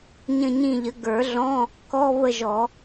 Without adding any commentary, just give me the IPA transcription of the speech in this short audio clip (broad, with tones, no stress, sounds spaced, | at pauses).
ɲ ə̃˦˨ ɲ ĩ˦˨ ʎ ə˩˥ ɡ ə˞˨˩˦ ɮ ɔ̃˧˥˧ | k ɔ˧˥˧ β ə˦˨ ʒ ɔ˨˩˦